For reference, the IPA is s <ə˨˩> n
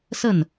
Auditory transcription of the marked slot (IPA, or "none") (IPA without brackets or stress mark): ə˥˩